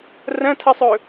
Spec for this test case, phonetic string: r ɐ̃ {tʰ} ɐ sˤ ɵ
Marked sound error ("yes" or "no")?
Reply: no